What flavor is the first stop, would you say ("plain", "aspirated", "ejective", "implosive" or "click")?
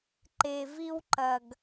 click